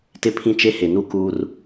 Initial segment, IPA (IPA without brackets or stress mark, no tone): t